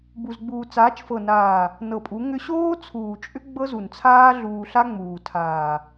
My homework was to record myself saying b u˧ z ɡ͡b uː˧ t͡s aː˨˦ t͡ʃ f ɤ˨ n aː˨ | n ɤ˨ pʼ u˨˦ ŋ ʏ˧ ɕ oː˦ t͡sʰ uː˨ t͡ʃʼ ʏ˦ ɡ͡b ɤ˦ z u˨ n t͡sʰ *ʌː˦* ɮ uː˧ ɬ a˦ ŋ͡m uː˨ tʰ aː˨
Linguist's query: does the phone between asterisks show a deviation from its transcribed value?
yes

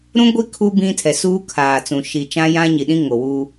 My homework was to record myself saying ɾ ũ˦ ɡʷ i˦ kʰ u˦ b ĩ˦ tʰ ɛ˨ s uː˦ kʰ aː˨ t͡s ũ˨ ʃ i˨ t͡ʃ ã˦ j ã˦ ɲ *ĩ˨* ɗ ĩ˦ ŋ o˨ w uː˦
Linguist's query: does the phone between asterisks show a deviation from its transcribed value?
yes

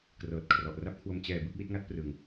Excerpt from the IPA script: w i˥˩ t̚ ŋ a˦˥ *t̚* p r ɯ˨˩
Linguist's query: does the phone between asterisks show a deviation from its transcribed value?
no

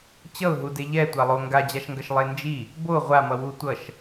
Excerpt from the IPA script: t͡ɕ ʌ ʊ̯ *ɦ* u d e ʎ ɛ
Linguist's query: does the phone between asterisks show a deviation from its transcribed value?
no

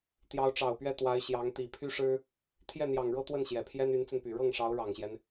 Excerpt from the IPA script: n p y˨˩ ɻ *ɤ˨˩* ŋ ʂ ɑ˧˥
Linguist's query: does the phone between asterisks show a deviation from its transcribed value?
yes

